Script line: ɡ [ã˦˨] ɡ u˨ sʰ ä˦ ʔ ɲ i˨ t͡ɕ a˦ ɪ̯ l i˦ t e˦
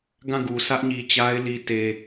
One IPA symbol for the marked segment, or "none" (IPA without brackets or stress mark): ã˦˨